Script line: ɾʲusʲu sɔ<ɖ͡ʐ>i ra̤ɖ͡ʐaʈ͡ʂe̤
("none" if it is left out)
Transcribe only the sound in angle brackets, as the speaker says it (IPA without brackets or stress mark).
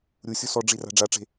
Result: ɖ͡ʐ